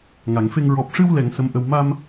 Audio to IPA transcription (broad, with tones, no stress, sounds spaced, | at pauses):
ŋ a˨˩˨ ŋ f e˧ ŋ ɹ ɔ˨˩ p̚ ʂ ɨ˧ w l ɛ˨˩˨ ŋ s ə˧˥ m ʔ ə˧ w m a˧ m